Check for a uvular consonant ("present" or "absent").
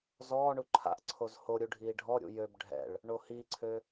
absent